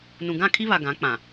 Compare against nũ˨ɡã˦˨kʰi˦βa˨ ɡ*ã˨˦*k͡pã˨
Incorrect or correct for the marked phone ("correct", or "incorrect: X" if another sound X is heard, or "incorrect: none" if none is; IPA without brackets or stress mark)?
correct